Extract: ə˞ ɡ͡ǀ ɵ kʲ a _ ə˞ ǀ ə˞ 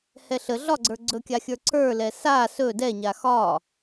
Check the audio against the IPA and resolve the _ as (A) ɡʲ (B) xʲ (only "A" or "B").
B